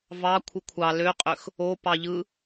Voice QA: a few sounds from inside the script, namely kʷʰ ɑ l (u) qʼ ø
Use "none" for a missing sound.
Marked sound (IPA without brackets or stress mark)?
ø